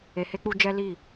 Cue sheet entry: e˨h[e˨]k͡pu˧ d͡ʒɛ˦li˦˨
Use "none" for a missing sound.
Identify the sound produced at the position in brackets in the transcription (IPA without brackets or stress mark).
e˧